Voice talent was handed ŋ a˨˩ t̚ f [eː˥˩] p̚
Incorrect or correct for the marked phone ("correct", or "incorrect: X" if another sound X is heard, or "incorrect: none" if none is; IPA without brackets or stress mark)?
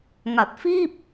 incorrect: iː˥˩